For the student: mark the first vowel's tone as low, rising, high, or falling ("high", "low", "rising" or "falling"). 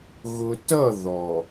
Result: low